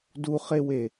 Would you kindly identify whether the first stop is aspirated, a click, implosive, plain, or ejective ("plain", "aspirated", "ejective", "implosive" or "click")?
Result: plain